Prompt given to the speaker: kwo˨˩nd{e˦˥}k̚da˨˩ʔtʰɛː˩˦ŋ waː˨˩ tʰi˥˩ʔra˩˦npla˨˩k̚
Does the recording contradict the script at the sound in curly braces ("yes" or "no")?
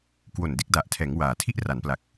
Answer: yes